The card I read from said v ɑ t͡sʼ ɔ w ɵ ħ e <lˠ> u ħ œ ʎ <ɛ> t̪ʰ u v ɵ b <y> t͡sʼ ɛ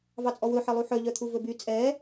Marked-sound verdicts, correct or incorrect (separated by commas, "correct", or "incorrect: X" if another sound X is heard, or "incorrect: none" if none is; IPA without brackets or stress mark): correct, incorrect: œ, correct